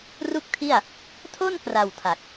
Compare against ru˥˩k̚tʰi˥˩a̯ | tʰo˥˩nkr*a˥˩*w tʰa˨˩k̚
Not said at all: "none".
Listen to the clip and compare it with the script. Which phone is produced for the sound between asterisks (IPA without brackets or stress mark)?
a˨˩